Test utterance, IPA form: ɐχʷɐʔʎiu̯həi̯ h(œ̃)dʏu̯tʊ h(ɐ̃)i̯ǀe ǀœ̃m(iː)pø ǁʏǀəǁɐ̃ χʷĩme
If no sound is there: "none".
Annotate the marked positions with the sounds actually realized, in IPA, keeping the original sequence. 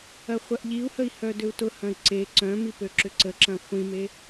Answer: œ, ɐ̃, i

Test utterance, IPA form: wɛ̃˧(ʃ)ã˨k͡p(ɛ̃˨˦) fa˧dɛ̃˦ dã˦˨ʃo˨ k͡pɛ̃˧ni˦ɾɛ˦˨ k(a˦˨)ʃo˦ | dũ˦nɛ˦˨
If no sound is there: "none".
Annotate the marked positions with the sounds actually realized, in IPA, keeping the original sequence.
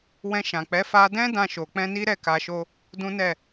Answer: ʃ, ɛ˨˦, a˧

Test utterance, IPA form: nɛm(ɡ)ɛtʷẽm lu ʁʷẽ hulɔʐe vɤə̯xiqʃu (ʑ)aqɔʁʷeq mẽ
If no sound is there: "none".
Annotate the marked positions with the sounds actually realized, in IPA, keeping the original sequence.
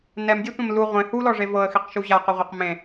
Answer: dʲ, ʑ

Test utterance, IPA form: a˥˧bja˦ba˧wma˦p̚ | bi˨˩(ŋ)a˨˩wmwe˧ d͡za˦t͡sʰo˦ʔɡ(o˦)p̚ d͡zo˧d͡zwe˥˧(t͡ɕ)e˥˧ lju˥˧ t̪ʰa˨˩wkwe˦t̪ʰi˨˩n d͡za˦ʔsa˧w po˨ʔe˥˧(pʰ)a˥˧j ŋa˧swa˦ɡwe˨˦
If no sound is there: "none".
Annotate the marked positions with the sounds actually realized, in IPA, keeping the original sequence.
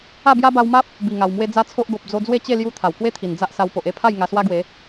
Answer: ŋ, o˨, t͡ɕ, pʰ

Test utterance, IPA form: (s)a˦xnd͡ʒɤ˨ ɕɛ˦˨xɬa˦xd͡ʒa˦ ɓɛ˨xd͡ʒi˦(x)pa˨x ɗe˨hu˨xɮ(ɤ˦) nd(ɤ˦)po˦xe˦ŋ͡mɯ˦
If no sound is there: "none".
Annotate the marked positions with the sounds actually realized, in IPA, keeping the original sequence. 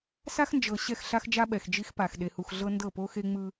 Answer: s, x, ɤ˦, ɤ˦˨

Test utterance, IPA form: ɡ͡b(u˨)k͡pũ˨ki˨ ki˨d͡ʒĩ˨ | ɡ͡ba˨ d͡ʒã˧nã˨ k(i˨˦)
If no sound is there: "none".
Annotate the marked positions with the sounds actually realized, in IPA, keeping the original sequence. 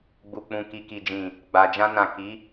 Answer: u˨, i˨˦

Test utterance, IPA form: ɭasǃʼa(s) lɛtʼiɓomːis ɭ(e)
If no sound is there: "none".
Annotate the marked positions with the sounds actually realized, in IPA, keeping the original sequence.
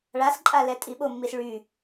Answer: none, y

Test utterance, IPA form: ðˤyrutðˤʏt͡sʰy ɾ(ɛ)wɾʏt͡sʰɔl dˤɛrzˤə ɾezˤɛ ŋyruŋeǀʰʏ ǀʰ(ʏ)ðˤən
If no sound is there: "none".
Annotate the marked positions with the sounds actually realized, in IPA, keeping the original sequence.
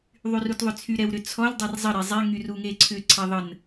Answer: ɛ, ɛ

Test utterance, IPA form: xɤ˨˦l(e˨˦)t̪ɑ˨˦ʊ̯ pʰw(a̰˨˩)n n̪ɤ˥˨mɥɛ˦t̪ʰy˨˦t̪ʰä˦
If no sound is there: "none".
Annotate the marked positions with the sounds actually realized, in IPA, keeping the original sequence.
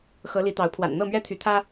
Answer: i˨˦, a̰˨˩

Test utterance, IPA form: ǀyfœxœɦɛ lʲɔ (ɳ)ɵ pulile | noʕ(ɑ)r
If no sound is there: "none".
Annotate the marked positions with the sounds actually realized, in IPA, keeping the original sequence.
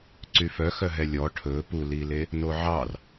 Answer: ʈʰ, ɑ

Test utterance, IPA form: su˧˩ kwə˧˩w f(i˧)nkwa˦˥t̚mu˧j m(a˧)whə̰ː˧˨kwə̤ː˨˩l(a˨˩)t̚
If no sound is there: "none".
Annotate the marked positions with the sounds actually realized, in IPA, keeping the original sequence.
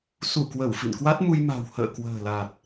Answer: ḭ˧˨, a̤˨˩, a˨˩

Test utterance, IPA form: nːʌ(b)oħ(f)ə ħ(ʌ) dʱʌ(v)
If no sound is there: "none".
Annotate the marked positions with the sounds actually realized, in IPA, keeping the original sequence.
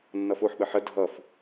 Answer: f, ɓ, ə, f

